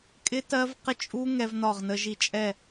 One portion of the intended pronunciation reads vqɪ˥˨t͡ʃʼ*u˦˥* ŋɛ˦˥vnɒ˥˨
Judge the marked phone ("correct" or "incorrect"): correct